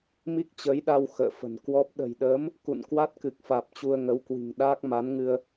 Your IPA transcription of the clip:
mi˦˥k̚t͡ɕəː˨˦jɗa˧w xə̰ː˧˨fə̤˨˩nkwɔ˦˥p̚ ɗə̤˨˩jɗəː˨˦m | kṵ˧˨nkwa˦˥t̚kɨ˨˩k̚faː˨˩p̚ t͡ɕu˧ə̯ŋə˨˦wkwi̤˨˩ŋɗaː˦˥k̚ ma˨˦nŋɨ˧ə̯

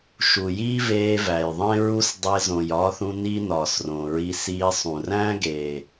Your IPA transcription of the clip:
ʃu˨jiː˦veː˧ væ˨jðˤẽ˦ɹu˦s dˤe˧zõ˨jɒː˧θũ˧ ni˦nɒː˨srõ˨ɹi˧ siː˧sˤũ˨ ræ̃˦ɡeː˨

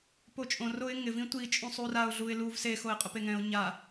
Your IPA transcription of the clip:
pot͡ʃʼõ roɪ̯ŋɪ vĩtʷi t͡ʃʼũsˤuraʊ̯ ɮuɪ̯luv se xoɪ̯qʼʊpeŋɛ̃ʊ̯ ɲa

